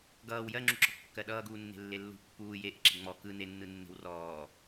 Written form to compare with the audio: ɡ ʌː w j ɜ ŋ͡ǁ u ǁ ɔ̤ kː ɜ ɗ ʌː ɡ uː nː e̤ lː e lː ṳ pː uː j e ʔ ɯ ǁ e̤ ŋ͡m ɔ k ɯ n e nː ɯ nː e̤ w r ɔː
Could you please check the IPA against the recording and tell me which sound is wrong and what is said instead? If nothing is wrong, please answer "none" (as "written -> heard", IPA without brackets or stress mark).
none